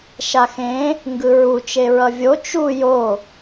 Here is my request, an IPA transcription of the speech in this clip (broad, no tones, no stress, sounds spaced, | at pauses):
ʃ a x ẽ | ŋ ɡ ɯ ɹ u t͡ʃ e ɹ ʌ vʲ o t͡ʃ u j o